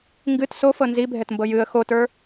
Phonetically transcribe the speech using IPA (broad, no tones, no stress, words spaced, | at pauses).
ŋɡɨt sofɤ nzibʱɛtmbɤ jɨə̯ xotə˞